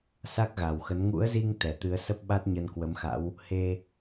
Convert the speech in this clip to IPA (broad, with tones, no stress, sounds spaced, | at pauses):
s a˦˥ k̚ ɣ a˨˩ w x ə˨˦ n ŋ ṵ˧˥ ə̯ z i˧ ŋ t̪ ɛ˨˩ t̪ ɨ˨˦ ə̯ s ə˦˥ p̚ ɓ a˦˥ t̚ ɲ ə˧ n k w ə˨˦ m x a̰˧˥ w | h e˧